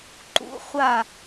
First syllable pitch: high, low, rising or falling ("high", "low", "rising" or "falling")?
rising